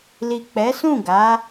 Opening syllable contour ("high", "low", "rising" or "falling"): low